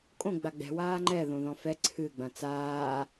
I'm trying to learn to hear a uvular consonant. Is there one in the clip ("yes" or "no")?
no